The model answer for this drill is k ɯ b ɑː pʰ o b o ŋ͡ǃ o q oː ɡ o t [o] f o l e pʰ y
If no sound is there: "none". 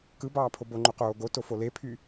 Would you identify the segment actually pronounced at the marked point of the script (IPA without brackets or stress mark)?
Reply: o